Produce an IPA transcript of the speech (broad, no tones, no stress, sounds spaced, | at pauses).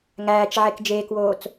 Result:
ŋ æː t͡ʃ ʕ e k d͡ʒ eː k w oː t͡s